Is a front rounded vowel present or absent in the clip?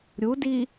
absent